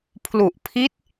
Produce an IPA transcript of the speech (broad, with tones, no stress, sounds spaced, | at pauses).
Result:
pʰ l u˨˩ ʔ pʰ i˦˥ t̚